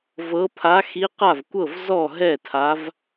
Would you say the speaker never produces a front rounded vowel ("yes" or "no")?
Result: yes